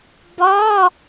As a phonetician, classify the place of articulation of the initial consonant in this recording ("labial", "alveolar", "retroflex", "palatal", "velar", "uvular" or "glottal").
labial